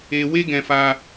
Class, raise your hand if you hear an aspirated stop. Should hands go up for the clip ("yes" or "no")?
no